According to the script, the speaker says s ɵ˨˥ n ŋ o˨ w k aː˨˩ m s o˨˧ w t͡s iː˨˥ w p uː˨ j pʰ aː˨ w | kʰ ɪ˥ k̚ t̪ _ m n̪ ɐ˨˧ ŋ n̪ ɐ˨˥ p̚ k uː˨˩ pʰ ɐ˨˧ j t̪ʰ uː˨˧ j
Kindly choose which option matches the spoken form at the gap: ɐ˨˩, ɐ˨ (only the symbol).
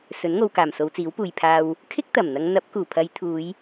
ɐ˨˩